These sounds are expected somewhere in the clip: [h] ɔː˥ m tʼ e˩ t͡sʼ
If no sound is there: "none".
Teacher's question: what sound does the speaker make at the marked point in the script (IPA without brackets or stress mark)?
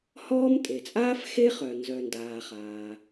h